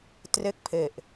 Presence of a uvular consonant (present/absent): absent